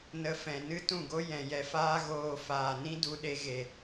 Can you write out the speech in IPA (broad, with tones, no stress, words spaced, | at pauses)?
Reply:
nə˧ fɛ̃˨nɨ˦ tũ˦˨ɡo˦ jɛ̃˨jɛ˧faː˦ ɣoː˨ faː˨nĩ˦ du˧ɗe˧ɣe˨